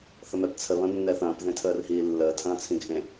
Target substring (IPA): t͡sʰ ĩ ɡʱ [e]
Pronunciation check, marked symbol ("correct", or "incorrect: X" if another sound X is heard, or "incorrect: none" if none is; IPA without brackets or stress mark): incorrect: ẽ